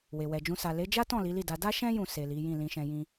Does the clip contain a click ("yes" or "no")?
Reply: no